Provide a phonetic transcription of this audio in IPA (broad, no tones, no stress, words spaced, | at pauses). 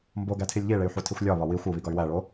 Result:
mboɡætʰilʲ ʎiɭey̯ħutʰixʷ lʲɒβɒ wixʷ uβiɡɒy̯ wæɭo